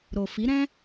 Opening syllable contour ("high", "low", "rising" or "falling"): low